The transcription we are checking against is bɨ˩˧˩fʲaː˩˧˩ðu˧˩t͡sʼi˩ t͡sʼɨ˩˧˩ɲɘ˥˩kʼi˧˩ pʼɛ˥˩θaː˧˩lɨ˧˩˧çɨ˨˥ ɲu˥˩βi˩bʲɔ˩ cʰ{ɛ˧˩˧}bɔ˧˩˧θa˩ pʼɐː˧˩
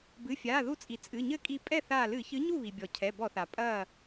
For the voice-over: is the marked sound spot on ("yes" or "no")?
no